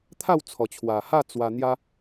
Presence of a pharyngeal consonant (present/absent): absent